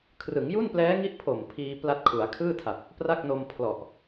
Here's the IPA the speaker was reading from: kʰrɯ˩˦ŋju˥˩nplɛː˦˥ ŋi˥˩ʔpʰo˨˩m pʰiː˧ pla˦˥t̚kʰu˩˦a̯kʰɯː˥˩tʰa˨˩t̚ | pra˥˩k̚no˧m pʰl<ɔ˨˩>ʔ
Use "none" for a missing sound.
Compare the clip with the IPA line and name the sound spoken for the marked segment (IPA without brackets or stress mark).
ɔ˨˩